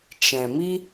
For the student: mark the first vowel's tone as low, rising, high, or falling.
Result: low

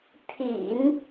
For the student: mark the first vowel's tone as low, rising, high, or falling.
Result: low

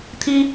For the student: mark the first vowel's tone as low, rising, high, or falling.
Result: high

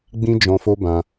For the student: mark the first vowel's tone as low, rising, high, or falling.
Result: high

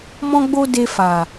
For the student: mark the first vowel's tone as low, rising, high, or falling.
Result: high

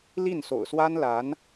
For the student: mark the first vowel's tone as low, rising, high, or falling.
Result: falling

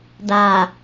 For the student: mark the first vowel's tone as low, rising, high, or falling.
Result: low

